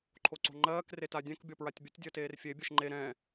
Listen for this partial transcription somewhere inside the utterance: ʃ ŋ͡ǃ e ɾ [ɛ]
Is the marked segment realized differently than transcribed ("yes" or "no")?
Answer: yes